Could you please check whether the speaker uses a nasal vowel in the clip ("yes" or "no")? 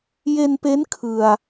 no